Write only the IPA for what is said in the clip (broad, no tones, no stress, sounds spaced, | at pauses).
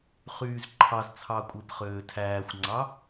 χ yː z ǃʰ ɑ z t͡sʰ ɑ kʷʼ e p χ øː tʰ æː xʷ ŋ͡ǀ ɑ